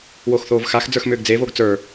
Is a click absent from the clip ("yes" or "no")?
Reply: yes